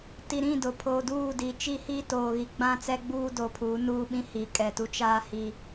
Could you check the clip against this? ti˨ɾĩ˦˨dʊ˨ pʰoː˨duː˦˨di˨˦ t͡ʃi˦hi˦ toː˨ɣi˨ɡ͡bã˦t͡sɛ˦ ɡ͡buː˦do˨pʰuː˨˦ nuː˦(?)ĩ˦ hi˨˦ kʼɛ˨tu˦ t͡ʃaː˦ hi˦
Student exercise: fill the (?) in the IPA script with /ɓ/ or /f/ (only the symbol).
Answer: ɓ